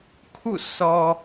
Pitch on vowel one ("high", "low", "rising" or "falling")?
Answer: falling